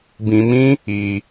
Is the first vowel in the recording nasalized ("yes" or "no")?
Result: yes